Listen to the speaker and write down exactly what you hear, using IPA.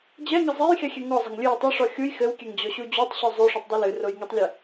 d͡ʑ ɛ ŋ ɐ zˤ e j x e xʲ ɛ ŋ ɔ zˤ ɐ ŋ lʲ ɨ j tˤ o ʂ ɔ xʲ u j x ɘ w kʲ ɛ ŋ d͡ʑ ɔ ɕ u d͡ʑ u tˤ ɕ u zˤ u ʂ u tˤ dˤ ɘ l ɨ r o j ŋ ɛ tˤ lʲ ɛ

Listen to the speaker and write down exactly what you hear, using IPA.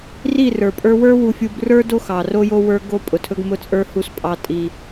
r i˦˨ r ə˞˨ pʼ ə˞˦ w ə˞˦ w u˨ fʲ u˨ b r ə˞˦ d o˦ x ɑ˨ r o˦ j o˦ w ə˞˦ ɡ o˦ pʼ ʊ˨ tʰ ɵ˦ ɡ m ʊ˦˨ t͡sʼ ə˞˦ h u˦ s pʼ ɑ˦ tʼ i˦

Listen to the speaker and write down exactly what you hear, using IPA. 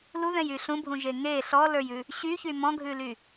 l u ð ɛ̃ j y ɬ ũ bʱ ũ ʒ e ŋ e ɬ ɔ l ə˞ j ʉ | ɕ y ç y m ɔ̃ ɡʱ ʉ l y

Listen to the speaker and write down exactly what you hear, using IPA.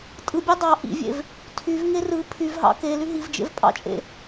tʼ ɯ bʲ ø dˤ ɑ ʔ ḭ vʲ ḛ v | tʰ y v ŋ e r ɯ pʰ y v ɦ ɑ̰ k e l y ɦ i v d͡ʒ ḛ v pʼ ɑ̰ t͡ʃʼ ḛ

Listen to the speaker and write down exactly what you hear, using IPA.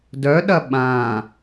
d œ ɗ ɐ ɓ ã

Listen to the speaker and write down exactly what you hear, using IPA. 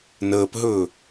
n əː p ɦ ɵː

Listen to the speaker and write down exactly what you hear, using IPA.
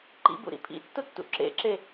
ǃ ḭ b ṵ ɾ ḭ pʰ ḭ tː ʊ tː ṵ ǁ ḛ ǁ e

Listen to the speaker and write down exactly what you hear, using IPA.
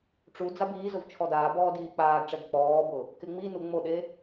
ʈ͡ʂ u d͡z a b iː z ʊ v t͡ʃʰ ɔ d aː b ɔː d iː k͡p aː ɡ ʈ͡ʂ ɛ ɡ k͡p ɔː b ʊ | k ɪ ŋ͡m i n u ŋ͡m o ɗ e

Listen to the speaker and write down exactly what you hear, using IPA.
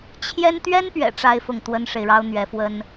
t͡ɕʰ j ɛ˥ n t̪ ɥ ɛ˥ n p ɥ ɛ̰˨˩ ʈ͡ʂ a˥˧ ɪ̯ f ʊ˥˩ ŋ t̪ w ə˥ n ʂ e˨ ɪ̯ ɻ ɑ˥ ʊ̯ n̪ ɥ ɛ˧˥ f w ə˥ n

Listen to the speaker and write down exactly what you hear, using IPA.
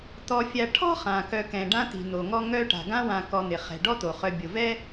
t̪ ɔ˨ fʲ a˨ ʈʰ ɔ̤˥ χ ã˩ k œ˨ k ɛ̃˩ ɖ ã˦ t̪ i̤˩ n̪ o˩ ŋ ɔ˦ ŋ œ˦ ʈ a̤˩ ɡ ã˦ w ã˨ k ɔ˨ n̪ ɪ˩ χ ɛ̤˩ ɖ ɔ˥ t̪ o˩ χ œ˨ bʲ o˩ v ɛ˥

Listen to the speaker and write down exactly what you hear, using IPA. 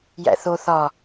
j æ̰ θ o θ ɒ

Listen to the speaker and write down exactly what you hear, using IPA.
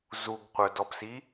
z u ɡ qʷ œ d ɔ p s i

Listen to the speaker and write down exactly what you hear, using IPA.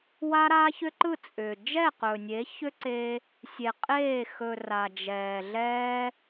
w a˦ ɾ aː˦ ç ʏ˦ ǃ ɯ˦˨ t͡sʼ ʏː˨ d͡ʒ ɛ˦˨ q ɵː˨ nʲ e˨˦ ç ʏ˦ ǀ e˧ | sʲ e˨ qʼ eː˦˨ x ɵ˨ r a˨ d͡ʒ ɛː˨ ɮ ɛ˦

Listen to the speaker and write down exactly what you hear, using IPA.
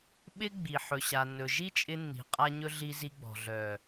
ɓ ɪ˦ ɡ͡b i˨ ħ ɵ˨ ɕ a˨ nː ɵ˨ ʒ i˦ t͡ʃʼ ɪ˧ nː i̤˨ qʼ a˧ ɲ ɵ˧ ɮ i˧ z i˧ ɡ͡b ɔ̤˨ ɮ œ˨

